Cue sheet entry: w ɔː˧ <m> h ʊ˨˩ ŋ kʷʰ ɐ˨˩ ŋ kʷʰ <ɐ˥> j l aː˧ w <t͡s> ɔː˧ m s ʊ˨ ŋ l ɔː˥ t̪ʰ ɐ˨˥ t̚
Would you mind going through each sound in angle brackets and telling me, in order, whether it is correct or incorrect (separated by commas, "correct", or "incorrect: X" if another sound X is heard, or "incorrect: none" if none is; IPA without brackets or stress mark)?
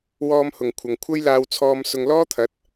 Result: correct, correct, incorrect: t͡sʰ